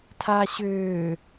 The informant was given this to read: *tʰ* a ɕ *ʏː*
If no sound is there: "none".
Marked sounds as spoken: tʰ, ʏː

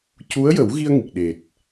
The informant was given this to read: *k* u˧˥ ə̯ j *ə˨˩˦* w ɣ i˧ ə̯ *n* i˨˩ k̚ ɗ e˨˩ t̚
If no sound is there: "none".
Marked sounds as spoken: c, ə˨˩˦, ŋ

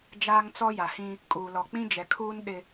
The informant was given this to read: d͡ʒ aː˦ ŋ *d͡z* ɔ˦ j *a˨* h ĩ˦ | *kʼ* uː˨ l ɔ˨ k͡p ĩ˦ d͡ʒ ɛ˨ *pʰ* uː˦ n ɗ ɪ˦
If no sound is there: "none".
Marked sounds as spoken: t͡s, a˨, kʼ, kʰ

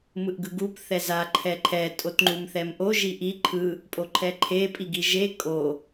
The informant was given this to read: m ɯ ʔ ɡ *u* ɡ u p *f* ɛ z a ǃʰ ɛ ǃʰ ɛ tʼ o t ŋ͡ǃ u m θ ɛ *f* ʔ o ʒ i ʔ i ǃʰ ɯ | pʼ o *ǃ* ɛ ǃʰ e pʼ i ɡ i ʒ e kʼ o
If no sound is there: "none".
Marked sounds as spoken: ɯ, θ, m, ǃʰ

